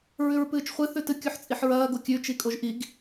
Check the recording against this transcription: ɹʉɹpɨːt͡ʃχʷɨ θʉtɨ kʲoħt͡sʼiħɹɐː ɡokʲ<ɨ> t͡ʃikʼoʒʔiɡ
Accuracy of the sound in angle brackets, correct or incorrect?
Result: incorrect